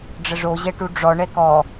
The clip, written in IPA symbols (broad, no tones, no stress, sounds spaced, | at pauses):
ɖ͡ʐ ə ʐ o ʑ ɛ ʈ u ɖ͡ʐ ɔ ɳ ɛ k ɔ